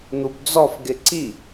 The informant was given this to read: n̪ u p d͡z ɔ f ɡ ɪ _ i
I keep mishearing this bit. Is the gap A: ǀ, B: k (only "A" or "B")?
A